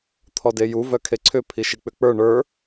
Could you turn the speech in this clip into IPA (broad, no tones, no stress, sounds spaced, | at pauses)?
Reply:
t̪ʰ ɔ d e j u v œ kʰ e ǀʰ ʏ pʰ i ʃ i k͡p ʏ k͡p ə˞ ɳ ə˞